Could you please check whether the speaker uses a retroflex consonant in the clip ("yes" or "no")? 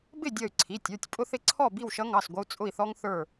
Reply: no